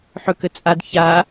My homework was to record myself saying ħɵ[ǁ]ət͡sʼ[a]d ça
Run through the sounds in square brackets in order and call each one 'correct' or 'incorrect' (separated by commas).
incorrect, correct